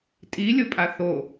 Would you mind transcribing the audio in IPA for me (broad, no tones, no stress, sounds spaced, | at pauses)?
tʼ i lʲ ʊ pʼ a θ o